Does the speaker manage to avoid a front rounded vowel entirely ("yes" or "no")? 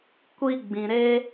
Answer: yes